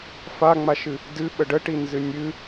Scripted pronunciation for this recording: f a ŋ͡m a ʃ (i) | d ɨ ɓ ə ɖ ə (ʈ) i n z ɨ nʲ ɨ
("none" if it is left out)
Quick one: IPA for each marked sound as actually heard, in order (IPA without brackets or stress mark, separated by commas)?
ɨ, ʈ